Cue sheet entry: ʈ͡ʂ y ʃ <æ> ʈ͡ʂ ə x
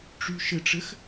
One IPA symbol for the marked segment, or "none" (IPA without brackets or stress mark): ə